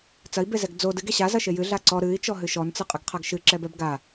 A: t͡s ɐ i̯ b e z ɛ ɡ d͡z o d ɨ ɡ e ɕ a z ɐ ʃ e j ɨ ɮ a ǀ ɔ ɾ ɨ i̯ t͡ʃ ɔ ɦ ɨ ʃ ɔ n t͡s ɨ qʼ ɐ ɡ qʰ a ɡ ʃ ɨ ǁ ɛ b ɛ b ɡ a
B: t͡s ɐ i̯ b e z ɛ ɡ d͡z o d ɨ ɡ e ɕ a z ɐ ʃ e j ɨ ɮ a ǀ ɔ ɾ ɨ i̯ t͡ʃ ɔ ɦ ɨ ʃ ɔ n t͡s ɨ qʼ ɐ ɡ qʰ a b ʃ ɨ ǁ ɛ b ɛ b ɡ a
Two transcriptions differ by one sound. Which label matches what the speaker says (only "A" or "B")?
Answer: A